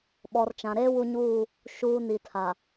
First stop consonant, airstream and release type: implosive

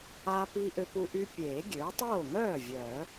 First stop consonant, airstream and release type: plain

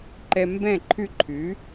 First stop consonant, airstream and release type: click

